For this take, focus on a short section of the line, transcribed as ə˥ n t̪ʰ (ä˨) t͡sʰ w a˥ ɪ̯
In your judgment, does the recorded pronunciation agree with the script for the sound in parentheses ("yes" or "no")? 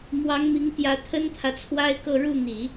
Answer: yes